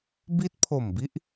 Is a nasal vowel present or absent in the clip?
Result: absent